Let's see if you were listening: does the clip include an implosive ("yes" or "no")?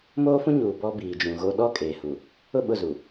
yes